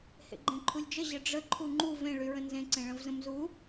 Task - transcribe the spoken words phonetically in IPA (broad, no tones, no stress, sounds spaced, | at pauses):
h ḛ ɡ͡ǃ ẽ ǃʰ u lʲ d͡ʒ ə ʑ ə ɖ͡ʐ ə ǃʰ u ŋ͡ǃ u v ẽ ɭ y ɹ ə̃ n z ẽ ǀ ẽ ɭ ə̃ v z ə̃ m z u